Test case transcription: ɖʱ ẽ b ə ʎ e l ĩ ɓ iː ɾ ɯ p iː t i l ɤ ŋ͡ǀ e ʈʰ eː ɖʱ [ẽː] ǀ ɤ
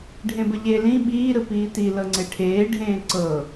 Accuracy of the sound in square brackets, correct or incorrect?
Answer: correct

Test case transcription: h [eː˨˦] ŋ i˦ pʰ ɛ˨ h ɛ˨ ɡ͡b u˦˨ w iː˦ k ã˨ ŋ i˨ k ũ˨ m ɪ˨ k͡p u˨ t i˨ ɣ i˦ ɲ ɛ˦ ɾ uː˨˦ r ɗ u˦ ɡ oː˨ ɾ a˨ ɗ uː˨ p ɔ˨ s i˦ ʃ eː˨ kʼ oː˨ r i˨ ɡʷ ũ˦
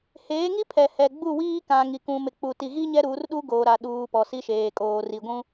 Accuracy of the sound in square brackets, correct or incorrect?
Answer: correct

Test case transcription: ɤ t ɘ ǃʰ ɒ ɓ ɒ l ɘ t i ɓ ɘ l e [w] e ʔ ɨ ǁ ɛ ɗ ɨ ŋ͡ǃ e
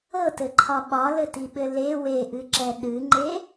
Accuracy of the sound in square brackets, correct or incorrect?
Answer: correct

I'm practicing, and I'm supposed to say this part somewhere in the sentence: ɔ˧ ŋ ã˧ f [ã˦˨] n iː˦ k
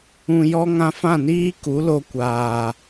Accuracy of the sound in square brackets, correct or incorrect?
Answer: correct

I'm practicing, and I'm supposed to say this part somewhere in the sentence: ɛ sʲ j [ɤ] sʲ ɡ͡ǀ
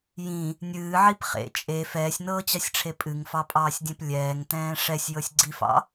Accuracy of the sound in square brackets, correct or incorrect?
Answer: correct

